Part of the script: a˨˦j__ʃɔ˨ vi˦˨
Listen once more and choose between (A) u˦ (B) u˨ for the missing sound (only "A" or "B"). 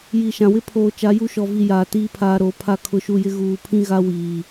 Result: A